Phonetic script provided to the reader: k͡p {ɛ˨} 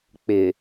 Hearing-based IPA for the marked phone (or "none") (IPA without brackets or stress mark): ɪ˨